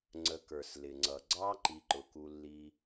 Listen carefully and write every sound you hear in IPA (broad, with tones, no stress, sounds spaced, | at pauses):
ŋ͡ǀ ə˨ k ə˞˩ s l ɪ˩ ŋ͡ǀ ʌ˩ ɡ͡ǀ ɑ˥ ǃ i˨ ǃ ʊ˩ k u˨ lː i˨